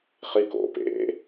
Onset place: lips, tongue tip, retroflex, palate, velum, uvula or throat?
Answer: uvula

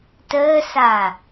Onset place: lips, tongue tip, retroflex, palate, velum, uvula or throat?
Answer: tongue tip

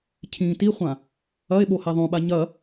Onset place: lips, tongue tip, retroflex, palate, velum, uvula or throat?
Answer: palate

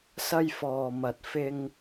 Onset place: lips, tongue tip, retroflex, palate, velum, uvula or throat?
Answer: tongue tip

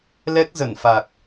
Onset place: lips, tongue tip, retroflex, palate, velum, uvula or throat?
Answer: tongue tip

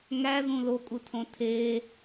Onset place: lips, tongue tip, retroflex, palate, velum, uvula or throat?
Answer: velum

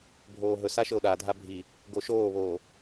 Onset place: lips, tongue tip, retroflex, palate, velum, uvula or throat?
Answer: lips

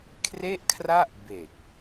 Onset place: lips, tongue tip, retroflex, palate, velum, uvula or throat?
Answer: velum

